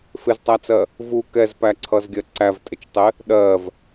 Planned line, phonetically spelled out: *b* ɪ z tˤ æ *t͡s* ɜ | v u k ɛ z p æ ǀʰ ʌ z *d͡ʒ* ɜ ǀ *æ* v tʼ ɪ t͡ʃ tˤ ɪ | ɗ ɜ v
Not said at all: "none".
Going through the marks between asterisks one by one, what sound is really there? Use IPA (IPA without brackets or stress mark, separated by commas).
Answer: f, t͡s, ɡʲ, æ